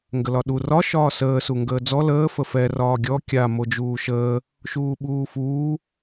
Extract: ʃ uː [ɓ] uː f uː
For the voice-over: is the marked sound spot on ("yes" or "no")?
yes